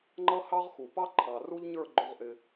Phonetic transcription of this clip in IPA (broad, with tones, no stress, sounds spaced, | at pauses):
ŋ͡ǃ ʌ˦ h ɑ˦ ʁ x u˨ p ɑ˦ ǃʰ ɑ˨ r u˦ ʎ ɲ ə˞˦˨ ɡ͡ǃ ʊ˦ ʁ ʔ ɪ˦